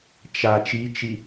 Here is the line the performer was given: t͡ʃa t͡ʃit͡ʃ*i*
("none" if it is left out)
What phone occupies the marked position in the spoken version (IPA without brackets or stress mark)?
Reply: i